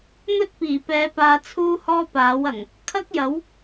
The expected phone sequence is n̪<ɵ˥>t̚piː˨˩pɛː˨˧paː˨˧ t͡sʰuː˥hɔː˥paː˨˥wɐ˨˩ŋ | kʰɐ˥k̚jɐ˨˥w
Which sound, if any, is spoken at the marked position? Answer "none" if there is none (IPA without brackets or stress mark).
ɵ˥